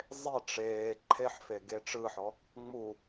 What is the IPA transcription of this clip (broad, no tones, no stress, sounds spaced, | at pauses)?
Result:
zˤ e ʈ͡ʂ eː ǃʰ e ħ f e ɡ e ʈ͡ʂ ɯ ħ ɔ | ŋ͡m u